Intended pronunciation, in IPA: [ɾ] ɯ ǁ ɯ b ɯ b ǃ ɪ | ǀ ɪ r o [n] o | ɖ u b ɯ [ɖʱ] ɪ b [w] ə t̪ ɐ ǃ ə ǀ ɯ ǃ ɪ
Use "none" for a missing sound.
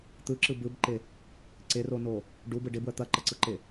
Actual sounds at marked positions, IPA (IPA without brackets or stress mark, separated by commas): t̪, n, ɖ, w